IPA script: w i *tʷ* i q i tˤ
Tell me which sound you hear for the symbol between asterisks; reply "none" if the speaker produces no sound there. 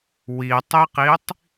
tˤ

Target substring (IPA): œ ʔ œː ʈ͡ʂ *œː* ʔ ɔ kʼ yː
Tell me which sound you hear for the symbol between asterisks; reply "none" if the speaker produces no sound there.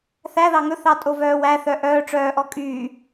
œː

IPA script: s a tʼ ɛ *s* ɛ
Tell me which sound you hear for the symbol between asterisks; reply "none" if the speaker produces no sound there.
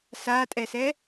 s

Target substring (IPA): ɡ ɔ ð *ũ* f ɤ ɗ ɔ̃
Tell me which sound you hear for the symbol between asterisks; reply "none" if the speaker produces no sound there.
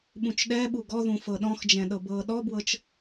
ũ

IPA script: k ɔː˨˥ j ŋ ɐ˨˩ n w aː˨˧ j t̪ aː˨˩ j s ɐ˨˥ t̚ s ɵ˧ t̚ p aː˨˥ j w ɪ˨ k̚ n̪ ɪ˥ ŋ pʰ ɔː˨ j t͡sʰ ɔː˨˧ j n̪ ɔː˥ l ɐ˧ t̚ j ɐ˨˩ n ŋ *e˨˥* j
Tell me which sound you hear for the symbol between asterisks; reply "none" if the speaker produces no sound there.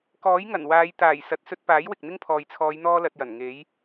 e˨˥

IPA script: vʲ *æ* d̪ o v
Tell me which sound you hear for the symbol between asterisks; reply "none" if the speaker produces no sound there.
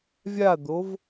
a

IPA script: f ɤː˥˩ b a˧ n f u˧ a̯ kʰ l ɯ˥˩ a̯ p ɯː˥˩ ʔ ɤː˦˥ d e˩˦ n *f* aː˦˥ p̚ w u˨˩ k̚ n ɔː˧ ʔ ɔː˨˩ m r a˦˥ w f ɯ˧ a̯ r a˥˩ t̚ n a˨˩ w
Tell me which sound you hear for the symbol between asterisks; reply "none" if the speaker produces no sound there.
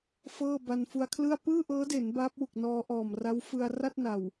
b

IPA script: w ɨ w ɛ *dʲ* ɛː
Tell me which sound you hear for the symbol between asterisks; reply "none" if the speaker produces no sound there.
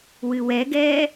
ɡ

